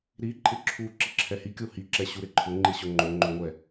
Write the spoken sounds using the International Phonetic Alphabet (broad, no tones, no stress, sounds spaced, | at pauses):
ɾ i ǃʼ ɪ ǁʰ u ǁ i ǁʰ ɛ h i kʲ o h i ǁ ɛ ɕ u ɾ e ǃʰ ʊ ŋ͡ǃ i ɕ ʊ ŋ͡ǃ o ŋ͡ǃ o ŋʷ ɛ